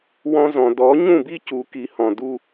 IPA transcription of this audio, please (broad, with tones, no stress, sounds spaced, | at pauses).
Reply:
w ɔ̃˧ z ɔ̃˩ d ɔ˩˥ ɲ ũ˥˩ b i˥ c u˩˥ k i˩˥ h ɔ̃˩ d u˧